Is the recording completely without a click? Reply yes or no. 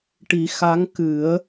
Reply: yes